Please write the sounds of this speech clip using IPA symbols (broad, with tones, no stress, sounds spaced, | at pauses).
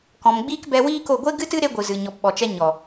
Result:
k ɔ̃˨ m ɡ͡b iː˦ k b ɛ˧ w iː˦ k o˦˨ ɡʷ e˦ ɡ ɨ˦ t ɨ˦ ɾ e˦ ɡʷ ɨ˨ z ɨ˨ ɲ ɔ˨ p ɓ ɔ˨ t͡ʃ ɛ˧ ɲ ɔ˨